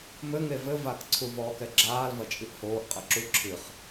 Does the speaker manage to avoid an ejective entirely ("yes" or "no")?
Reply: no